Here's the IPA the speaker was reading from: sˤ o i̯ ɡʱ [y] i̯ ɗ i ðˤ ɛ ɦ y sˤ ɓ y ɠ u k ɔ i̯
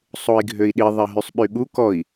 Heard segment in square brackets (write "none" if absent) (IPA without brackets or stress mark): ø